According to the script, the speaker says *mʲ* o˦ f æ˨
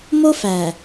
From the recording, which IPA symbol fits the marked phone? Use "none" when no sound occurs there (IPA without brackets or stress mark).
m